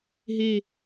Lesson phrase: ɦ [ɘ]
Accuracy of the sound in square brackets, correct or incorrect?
incorrect